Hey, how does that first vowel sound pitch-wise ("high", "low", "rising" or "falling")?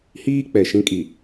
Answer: high